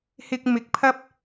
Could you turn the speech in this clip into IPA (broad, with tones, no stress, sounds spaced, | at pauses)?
h ɪ˧ k̚ m ɪ˨˥ k̚ pʰ ɐ˥ p̚